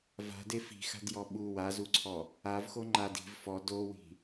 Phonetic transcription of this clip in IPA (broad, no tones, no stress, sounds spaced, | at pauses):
v a̤ d e f i̤ x a̤ d j ɔ ɓ u w a z u ǀʰ ɔ | a v x o ŋ͡ǃ a d i̤ v f ɔ d o w i̤